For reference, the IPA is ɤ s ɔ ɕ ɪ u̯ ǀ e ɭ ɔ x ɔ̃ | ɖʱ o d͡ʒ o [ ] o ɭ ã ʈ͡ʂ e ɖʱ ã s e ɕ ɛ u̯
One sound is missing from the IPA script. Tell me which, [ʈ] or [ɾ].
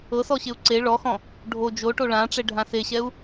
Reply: ʈ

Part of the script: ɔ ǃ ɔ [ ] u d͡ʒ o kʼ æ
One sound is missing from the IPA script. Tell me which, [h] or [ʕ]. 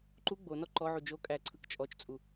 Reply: ʕ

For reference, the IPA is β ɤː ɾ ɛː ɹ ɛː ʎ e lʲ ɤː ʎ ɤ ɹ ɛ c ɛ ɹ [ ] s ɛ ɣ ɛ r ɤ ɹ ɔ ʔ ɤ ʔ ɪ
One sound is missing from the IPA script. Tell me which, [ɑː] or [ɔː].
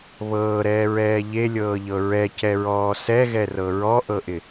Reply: ɔː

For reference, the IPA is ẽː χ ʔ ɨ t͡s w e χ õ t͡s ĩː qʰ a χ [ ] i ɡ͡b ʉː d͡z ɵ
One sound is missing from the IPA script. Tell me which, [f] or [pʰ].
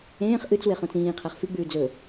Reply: f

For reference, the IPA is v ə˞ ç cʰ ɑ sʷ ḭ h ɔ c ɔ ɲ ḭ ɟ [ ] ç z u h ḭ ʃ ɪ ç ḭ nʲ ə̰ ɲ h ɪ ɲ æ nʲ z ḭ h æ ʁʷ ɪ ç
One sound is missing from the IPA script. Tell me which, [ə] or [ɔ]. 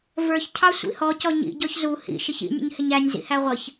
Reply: ɔ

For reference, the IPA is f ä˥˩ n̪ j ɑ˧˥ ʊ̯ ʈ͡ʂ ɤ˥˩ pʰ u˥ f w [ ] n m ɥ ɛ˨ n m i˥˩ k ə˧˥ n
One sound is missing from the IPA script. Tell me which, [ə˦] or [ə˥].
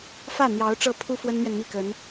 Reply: ə˥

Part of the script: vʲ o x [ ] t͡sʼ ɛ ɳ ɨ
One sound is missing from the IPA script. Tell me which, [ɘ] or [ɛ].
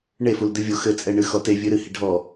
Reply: ɘ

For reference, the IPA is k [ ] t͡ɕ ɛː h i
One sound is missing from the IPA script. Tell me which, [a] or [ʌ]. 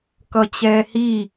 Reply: ʌ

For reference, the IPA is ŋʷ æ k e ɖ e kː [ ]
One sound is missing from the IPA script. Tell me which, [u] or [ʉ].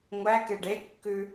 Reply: ʉ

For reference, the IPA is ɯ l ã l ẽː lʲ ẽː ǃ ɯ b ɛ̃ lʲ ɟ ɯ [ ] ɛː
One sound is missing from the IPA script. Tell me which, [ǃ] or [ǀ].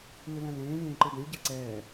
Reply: ǀ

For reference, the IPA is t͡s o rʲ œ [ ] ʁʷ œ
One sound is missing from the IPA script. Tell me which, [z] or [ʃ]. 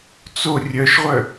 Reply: ʃ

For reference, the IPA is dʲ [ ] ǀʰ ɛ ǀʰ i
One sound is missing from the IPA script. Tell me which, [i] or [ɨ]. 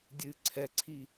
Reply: ɨ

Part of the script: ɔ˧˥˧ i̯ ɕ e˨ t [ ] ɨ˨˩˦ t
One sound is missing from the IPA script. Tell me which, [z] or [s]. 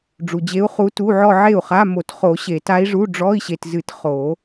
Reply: z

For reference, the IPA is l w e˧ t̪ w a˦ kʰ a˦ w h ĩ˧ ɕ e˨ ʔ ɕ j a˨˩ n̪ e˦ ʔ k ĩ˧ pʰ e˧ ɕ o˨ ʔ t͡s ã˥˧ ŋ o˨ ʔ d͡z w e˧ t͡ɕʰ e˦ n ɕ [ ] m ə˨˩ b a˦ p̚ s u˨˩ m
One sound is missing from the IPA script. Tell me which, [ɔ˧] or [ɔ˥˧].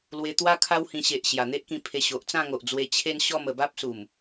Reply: ɔ˥˧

